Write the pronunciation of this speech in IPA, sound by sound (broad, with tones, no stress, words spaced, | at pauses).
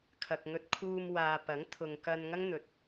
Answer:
kʰɐ˨k̚ŋɵ˧t̚kʰuː˧mwaː˨ pɐ˨˥ŋ t̪ʰʊ˨ŋkɐ˧n ŋɐ˥ŋn̪ɵ˨t̚